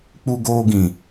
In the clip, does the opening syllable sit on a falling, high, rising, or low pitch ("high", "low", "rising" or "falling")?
high